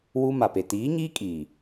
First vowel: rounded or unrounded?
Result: rounded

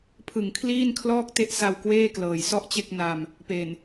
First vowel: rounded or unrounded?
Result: unrounded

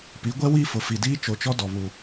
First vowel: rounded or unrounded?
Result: unrounded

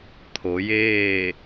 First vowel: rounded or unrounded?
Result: rounded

